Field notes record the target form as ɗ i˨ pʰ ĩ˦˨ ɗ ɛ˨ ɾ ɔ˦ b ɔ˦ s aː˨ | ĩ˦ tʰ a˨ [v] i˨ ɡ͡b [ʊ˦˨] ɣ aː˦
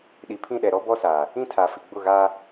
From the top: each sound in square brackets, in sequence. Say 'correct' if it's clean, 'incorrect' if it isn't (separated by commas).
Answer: incorrect, correct